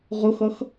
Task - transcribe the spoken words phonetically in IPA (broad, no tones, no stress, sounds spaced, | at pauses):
ʁ ʊ x ʌ x